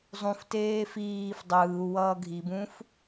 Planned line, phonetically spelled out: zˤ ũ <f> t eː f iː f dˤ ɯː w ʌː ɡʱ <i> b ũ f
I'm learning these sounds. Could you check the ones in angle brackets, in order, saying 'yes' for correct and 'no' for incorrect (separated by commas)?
yes, yes